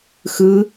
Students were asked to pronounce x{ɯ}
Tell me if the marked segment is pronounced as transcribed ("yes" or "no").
yes